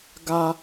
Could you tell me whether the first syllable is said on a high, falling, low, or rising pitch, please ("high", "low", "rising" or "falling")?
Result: high